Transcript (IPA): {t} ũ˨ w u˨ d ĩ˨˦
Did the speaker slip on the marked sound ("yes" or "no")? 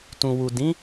no